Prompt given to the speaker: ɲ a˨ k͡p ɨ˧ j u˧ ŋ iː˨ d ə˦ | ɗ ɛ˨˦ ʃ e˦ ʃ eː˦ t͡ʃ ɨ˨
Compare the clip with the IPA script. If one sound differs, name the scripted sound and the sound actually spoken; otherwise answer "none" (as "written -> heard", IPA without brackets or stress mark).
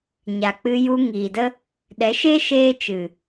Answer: none